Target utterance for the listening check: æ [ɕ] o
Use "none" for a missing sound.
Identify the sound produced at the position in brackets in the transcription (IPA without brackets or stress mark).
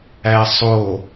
sˤ